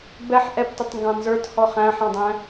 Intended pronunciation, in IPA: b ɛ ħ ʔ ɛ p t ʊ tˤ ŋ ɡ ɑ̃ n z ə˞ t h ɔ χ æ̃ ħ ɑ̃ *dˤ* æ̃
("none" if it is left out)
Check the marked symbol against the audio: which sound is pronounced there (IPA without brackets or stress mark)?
dˤ